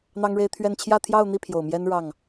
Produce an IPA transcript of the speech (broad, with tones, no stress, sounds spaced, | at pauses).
n̪ ɑ˥ ŋ ɻ e˥ ɪ̯ t̪ʰ ɥ ɛ˥˧ n t͡ɕʰ j ä˥˧ t̪ʰ j ɑ˥˧ ʊ̯ n̪ i˥˩ pʰ j o˨˩ ʊ̯ m j ɛ˥ n ɻ ɑ˥˩ ŋ